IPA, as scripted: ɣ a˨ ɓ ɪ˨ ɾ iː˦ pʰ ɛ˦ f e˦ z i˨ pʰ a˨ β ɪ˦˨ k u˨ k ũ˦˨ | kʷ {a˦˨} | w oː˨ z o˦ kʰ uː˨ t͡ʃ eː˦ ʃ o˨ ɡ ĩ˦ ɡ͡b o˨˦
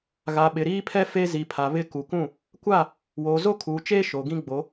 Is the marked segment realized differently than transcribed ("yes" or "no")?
no